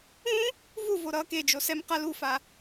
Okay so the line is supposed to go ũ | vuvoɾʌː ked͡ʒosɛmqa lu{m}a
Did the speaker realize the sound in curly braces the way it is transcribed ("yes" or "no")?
no